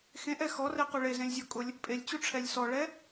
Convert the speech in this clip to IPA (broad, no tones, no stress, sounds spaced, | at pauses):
x ẽ ʔ ɛ x ɔ r ɛ q u ɭ e z ẽ lʲ zʲ ɔ kʼ ʊ lʲ | pʼ e lʲ t͡ɕ u ʈ͡ʂʰ ɛ lʲ s ɔ ɭ ɛ